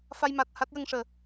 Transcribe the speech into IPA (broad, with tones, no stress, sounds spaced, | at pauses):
f a˧ j m a˨˩ t̚ h a˦˥ t̚ j ə˧ ŋ ʂ əː˨˩